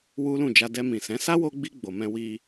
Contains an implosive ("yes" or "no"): no